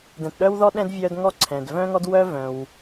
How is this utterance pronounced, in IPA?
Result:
dɛ̃˩tɗœ˥wðɔ˥ ɗɛ̃˥d vʲœ˥d ŋɔ˥ǀʰɛ̃˩d vœ̃˥ŋɔ˥dwœ˥ vœ̃˩w

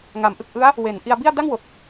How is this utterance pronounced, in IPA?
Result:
ŋa˩˦mʔɯ˨˩k̚ʔɯ˦˥a̯ | we˩˦n ʔi˧a̯bi˥˩a̯ da˥˩ŋwo˨˩k̚

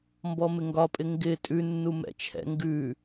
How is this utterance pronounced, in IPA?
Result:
mbɔmɪŋɡɒpʼɪ ŋɡɪ tʼʉnːu mɛ̰t͡ʃʰɛ̰ ŋɡʉ

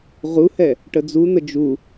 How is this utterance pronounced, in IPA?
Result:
ʁuhɛ | ʈəd͡zun̪ə d͡ʒu

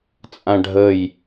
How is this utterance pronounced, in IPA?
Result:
t͡sʼãɖʱəj

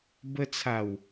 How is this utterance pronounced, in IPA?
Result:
bə˧t͡sʰa˨˩w

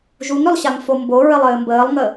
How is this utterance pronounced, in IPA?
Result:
ʒuŋɾʏlˠɕaŋ fomboɹɘlˠ ɘːmbəːlˠŋə

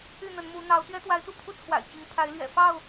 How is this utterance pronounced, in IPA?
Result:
y˥˨n̪ə˨˦nmu˨˦ n̪ɑ˨˦ʊ̯ t̪ɥɛ˦t̪wa˨˦ɪ̯t̪u˥˨pʰu˦ t͡sʰwa̰˨˩ɪ̯t͡ɕi˨˦ŋ pʰa˨˦ɪ̯lɥɛ̰˨˩ fɑ˥˨ʊ̯

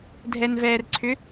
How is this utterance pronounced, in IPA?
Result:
dʱɛnvɛːrǀʰʏ

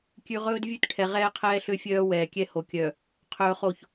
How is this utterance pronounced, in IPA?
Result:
kʲʉ˨ʁɵː˦d vʲʉ˦tʈʰɛ˨ʁɛː˦qʰɛː˦ ɬø˦fʲœː˦ wɛː˨ kʲɛ˦ho˨kʲœ˨ | qʰɵː˨χo˨ç

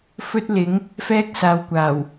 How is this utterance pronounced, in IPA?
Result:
fɵ˥t̚lɪ˨˥ŋ | fɛː˥k̚saː˨˧wkʷaː˨˩w

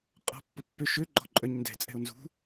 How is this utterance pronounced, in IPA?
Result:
qʼɔ̤pːʊpːø ʃøɡ͡ǃɔ̤ ǃʼœɲndɛ̤ t͡sʼɛ̤o̯nzṳ

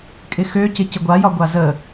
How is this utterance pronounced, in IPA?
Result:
kʼɪxøcɪ cɪɡʷajɒ ɡʷazə

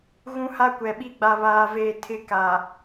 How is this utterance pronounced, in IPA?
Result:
ɣũ˦ha˦kʷɛ˨ɓi˦ ɡ͡ba˨βaː˨veː˨ tʰɪ˦ka˨

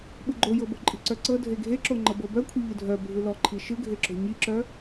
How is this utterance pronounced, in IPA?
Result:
ɓɯɡ͡ǃojɤ boǃʼi̤ǀœǀɤ dʱeɡʱeǁo ŋ͡ǃɤbɤbœ kʷʰiʎɯdʱœ bʱɯlɔǃʰi ʃɯɡʱeǁo̤ ɲiǁœ

